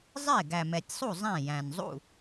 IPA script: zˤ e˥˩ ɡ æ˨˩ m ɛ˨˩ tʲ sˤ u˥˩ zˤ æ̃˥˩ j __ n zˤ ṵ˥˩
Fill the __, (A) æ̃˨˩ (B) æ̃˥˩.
A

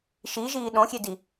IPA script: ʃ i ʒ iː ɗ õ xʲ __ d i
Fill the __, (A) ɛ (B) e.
B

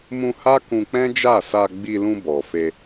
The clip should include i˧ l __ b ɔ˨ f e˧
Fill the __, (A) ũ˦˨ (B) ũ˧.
B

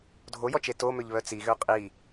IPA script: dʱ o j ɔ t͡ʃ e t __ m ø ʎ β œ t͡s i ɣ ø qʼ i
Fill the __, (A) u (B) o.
B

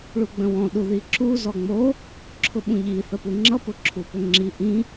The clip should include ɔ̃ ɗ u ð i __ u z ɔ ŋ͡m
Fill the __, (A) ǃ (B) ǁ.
B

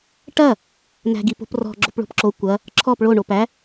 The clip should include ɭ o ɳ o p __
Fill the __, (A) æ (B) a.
A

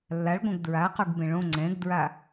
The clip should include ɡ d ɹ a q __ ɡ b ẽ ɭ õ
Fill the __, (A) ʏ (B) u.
B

